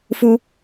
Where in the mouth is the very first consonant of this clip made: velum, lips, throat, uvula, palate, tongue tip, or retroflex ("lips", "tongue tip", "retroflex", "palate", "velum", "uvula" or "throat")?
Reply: lips